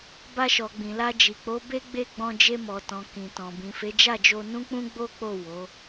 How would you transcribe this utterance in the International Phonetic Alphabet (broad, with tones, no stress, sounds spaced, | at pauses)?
b a˧ ʃ ɔ˨ ɡ͡b ĩ˨ l a˧ d͡ʒ i˨ k͡p o˨˦ b e˦ ɡ͡b e˦˨ ɡ͡b ɔ̃˧ d͡ʒ e˧ m ɔ˨ t ɔ̃˨ k ĩ˨ t ɔ̃˨ b ĩ˨ f e˨˦ d͡ʒ a˦˨ d͡ʒ o˧ n ũ˦ k͡p ũ˦ ɡ͡b o˦ k͡p o˦˨ w o˨˦